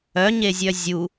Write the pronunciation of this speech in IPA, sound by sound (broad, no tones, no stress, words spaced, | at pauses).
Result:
œɲezʲœ zʲu